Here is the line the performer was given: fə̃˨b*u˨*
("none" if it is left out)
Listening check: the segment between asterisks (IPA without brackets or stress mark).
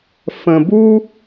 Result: u˦